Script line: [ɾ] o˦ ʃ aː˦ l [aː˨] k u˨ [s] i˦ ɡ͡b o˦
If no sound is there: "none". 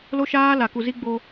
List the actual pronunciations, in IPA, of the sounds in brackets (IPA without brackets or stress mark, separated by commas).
l, a˨, z